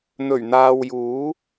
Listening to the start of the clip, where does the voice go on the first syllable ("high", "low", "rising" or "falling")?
low